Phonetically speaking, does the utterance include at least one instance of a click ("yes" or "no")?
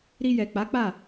no